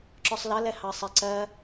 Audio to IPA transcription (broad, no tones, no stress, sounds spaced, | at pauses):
ǁ ɔ sˤ l ʌ l ɛ h ɑ sˤ ɛ ǀ ɜ